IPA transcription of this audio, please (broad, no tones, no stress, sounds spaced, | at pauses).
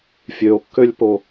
fʲ ø o̯ kː ø lʲ p o